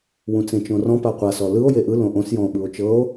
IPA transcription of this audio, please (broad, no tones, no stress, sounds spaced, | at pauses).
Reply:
w ũ t͡s ẽ t͡ʃ õ r ɔ̃ p a qʷ a s ɔ l ɯ o̯ j e ʔ ɯ l õ ʔ õ s j ɔ̃ o̯ ɓ ɯ o̯ t͡ʃ ɤ o̯